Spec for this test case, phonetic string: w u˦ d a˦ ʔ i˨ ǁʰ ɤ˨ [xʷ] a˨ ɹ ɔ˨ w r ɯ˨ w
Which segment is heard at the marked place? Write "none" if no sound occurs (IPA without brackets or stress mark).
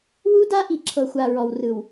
xʷ